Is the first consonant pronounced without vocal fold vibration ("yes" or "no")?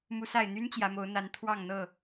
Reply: no